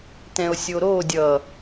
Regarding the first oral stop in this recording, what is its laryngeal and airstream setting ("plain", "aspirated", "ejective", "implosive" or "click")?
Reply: plain